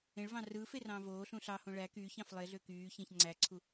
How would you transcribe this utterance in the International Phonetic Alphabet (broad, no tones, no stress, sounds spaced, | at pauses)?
ẽ ɭ v ɑ̃ r ɯː f e r ɑ̃ː v oː ɬ ũ ɬ ɑ h õ ɭ æ k yː ç ɑ̃ f lˠ e ɮ ø k yː ç ẽ ç ŋ͡ǀ æ ǀʰ u